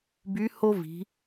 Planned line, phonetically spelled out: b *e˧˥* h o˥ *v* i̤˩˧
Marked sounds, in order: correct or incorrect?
incorrect: y˧˥, correct

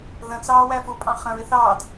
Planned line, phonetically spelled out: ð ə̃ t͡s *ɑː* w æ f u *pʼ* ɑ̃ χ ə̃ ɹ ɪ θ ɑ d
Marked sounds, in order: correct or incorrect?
correct, correct

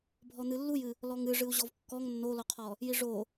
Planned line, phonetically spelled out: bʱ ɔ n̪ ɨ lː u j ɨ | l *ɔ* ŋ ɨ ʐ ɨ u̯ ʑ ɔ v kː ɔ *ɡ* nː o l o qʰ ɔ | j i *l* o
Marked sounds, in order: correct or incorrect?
correct, incorrect: ŋ, incorrect: ʐ

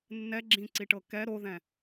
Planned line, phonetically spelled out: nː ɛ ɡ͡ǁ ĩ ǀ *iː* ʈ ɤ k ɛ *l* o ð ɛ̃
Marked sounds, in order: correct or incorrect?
incorrect: i, incorrect: ɾ

